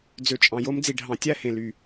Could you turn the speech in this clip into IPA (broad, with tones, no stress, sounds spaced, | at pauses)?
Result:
d͡z ø˨ t͡ʃʼ ɑ̃˨ j o˧ m d͡z i˨ ɖʱ ɑ̃˨ tʲ æ˦˨ h ẽ˨ l y˨